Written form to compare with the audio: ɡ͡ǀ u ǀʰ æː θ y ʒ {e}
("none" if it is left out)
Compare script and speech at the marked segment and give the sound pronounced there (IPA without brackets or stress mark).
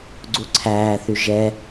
ɛ